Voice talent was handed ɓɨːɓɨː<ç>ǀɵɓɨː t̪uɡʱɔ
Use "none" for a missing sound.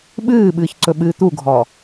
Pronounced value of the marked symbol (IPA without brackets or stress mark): ç